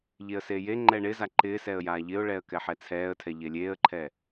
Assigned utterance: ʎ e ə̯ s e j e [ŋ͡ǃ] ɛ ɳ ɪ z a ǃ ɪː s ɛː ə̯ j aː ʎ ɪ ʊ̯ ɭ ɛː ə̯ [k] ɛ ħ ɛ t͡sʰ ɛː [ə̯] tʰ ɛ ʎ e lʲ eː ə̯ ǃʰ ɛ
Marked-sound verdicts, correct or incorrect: correct, correct, correct

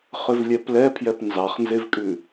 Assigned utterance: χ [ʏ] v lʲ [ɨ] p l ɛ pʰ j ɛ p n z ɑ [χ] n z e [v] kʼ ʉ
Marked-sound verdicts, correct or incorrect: correct, incorrect: ɛ, correct, correct

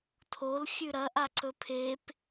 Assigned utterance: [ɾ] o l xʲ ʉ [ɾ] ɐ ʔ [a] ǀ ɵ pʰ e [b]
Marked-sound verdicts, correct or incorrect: incorrect: tʰ, correct, correct, incorrect: p

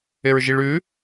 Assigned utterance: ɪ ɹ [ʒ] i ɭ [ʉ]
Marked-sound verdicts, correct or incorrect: correct, correct

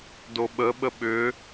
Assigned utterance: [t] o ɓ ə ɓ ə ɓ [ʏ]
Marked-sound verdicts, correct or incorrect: incorrect: d, correct

